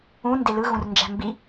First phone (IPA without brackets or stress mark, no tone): ũ